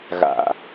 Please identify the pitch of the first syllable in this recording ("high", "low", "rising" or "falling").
low